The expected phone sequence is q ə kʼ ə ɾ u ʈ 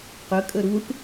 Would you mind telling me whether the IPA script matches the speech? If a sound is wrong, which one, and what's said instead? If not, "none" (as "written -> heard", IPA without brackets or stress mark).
none